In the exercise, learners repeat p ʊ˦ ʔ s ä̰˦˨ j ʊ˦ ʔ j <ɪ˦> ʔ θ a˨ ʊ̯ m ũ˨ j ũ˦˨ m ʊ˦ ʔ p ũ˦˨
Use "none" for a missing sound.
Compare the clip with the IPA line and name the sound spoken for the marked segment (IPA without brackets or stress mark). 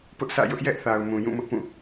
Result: ɛ˦